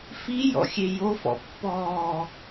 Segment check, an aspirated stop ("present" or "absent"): absent